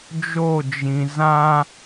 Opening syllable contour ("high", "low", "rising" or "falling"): falling